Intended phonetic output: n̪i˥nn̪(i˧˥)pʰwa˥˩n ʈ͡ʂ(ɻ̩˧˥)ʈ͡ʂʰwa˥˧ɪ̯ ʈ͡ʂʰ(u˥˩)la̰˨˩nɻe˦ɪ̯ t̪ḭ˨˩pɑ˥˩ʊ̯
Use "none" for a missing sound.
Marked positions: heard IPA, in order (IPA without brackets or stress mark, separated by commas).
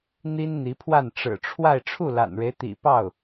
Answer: i˧˥, ɻ̩˨˩, u˥˩